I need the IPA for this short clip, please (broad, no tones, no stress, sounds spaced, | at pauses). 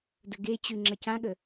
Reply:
d ə ɡ e t͡ɕ ʉ ŋ͡ǁ ɐ c ã ɠ ə